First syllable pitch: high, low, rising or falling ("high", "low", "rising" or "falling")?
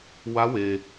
rising